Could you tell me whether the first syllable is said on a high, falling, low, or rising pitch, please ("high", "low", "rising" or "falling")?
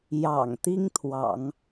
low